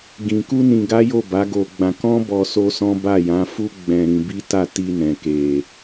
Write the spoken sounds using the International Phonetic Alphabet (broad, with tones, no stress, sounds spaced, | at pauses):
ɡ ĩ˧ k u˦ n ĩ˧ ɡ a˦ j o˦˨ b a˨˦ ɡ o˧ ɡ͡b ã˧ k ɔ̃˦ b ɔ˧ s o˦ s ɔ̃˦ b a˦˨ j ã˨˦ f u˦ ɡ͡b ɛ̃˧ ɾ ĩ˧ b i˦ t a˦˨ t i˧ n ɛ̃˨ k e˨